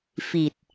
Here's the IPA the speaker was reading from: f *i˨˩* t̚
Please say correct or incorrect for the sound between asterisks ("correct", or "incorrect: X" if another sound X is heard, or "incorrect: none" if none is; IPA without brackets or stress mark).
correct